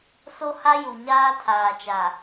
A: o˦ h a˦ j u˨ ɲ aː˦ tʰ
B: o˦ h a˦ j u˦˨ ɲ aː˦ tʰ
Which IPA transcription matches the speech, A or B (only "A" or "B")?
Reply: A